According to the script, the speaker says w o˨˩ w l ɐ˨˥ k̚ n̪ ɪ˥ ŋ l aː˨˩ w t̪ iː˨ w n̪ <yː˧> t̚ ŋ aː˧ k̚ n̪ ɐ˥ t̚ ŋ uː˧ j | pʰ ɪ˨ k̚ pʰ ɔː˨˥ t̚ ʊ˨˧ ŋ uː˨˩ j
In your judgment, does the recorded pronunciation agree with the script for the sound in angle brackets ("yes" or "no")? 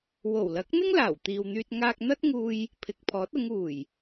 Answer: yes